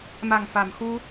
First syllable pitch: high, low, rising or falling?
low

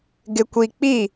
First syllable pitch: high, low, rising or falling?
low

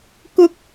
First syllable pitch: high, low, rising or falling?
high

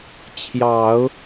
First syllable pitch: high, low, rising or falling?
low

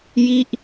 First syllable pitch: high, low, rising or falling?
falling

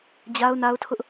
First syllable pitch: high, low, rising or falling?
high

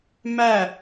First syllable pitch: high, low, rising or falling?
falling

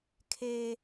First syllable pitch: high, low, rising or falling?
high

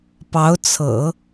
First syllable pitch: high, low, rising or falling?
rising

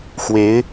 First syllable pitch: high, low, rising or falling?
rising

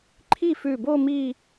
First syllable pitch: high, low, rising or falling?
falling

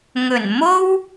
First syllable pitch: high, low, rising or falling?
low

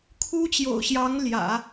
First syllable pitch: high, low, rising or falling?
high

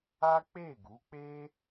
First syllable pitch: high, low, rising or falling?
high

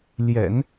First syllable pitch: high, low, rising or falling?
low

